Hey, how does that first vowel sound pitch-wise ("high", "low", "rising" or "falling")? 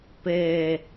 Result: low